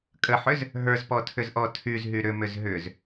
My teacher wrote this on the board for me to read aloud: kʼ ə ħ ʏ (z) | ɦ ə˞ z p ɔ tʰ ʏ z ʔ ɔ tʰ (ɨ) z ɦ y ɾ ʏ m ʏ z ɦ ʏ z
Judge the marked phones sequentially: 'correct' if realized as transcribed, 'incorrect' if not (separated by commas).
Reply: correct, incorrect